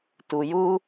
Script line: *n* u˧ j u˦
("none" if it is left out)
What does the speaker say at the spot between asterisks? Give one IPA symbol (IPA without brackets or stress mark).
t